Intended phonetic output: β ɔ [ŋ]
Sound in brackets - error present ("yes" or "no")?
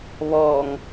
no